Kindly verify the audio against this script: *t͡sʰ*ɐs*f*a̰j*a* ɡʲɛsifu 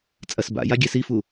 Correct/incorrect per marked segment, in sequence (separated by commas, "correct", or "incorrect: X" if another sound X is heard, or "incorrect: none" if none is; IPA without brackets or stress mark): incorrect: t͡sʼ, incorrect: b, correct